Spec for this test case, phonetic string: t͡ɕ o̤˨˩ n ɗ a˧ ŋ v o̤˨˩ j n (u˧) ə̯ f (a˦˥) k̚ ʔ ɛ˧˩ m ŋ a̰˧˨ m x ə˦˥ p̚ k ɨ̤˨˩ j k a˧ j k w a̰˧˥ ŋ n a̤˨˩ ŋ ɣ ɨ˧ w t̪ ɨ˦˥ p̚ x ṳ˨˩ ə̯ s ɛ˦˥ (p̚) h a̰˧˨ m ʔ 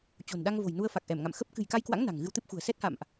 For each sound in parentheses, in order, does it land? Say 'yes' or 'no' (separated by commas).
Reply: yes, no, no